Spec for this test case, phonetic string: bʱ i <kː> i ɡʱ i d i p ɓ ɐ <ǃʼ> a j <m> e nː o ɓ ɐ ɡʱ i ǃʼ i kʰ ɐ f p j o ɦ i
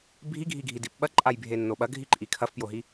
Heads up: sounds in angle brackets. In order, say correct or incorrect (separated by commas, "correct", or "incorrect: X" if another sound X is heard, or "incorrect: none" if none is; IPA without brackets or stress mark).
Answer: incorrect: ɡʱ, correct, incorrect: bʱ